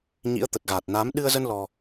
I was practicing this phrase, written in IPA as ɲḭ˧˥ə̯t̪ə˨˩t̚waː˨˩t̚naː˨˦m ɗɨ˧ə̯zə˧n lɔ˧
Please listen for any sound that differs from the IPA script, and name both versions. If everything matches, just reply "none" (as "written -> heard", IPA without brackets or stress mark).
w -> ɣ